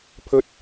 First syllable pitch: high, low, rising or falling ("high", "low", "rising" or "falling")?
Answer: high